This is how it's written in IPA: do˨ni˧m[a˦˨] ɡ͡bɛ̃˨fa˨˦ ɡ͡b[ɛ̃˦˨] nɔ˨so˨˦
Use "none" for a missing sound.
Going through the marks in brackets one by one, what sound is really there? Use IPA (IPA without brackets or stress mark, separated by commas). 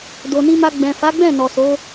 a˧, ɛ̃˦˨